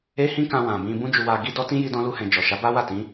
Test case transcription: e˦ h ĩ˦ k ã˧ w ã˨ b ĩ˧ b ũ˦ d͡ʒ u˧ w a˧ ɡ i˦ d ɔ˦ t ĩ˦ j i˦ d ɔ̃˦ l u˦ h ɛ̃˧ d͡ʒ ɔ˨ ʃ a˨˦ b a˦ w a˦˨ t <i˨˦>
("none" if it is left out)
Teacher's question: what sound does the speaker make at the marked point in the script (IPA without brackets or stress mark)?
ĩ˨˦